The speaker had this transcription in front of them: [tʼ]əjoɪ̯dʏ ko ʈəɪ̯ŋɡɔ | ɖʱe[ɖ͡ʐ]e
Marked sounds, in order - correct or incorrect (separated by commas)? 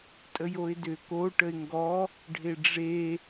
correct, correct